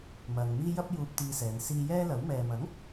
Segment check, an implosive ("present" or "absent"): absent